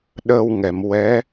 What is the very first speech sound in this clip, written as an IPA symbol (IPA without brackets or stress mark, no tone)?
ɗ